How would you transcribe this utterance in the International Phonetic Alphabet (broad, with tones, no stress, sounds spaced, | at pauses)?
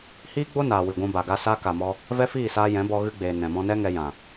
h iː˦ ɡ͡b o˦ n aː˨ w ɨ˨ ɡʷ ũ˧ b a˨ ɡ a˧ s a˦ k a˨ m ɔ˧ | v ɛ˦ f iː˦˨ s aː˧ j ɛ̃˨˦ b ɔ˧ ɣ ɨ˧ ɡ͡b eː˨ n ɛ̃˨ m ɔ̃˧ n ɛ˦ ŋ ɛ˧ j ã˨